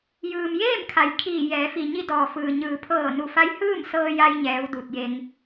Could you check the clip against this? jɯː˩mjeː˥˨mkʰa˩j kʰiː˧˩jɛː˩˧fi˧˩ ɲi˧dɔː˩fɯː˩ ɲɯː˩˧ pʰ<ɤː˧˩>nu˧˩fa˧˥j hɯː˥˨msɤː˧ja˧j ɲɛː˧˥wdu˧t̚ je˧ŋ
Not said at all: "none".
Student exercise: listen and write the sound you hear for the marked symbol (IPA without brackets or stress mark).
ɤː˧˩